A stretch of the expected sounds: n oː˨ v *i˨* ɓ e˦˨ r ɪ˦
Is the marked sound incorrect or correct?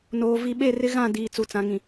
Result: correct